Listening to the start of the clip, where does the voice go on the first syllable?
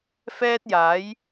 high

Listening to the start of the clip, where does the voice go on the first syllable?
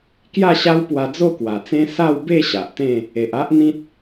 falling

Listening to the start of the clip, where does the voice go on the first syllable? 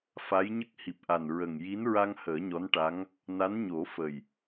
rising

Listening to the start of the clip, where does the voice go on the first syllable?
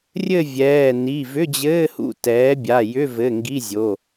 falling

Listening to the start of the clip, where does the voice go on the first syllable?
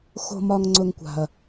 low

